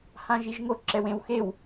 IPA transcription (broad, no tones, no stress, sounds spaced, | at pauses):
h ã ʒ i ʒ ŋ o ǁ ɛ w ẽ w x e w